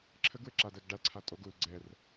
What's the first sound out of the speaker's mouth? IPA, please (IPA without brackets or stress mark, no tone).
ǁʰ